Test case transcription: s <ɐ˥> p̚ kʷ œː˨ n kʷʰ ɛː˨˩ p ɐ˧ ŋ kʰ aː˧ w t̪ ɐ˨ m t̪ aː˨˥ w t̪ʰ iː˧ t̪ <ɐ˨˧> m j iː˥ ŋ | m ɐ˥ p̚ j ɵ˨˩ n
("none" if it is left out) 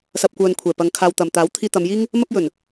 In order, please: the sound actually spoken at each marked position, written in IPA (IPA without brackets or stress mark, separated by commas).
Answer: ɐ˨, ɐ˨˧